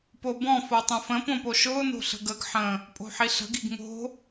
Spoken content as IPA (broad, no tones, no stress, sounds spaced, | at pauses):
p o b ɔ̃ f o tˤ ə̃ f ə̃ p õ p o ʃ ʊː n o̤ ɬ ə̤ ɡ ə ɡ ħ ə̃ | pʼ o̤ ħ i ɬ ə̤ ɡ i ɡ ŋ o̤